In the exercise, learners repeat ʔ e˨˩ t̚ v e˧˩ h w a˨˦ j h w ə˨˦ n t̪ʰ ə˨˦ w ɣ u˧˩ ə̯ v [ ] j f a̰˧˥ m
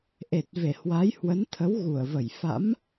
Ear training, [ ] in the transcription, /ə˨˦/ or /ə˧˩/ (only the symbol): ə˧˩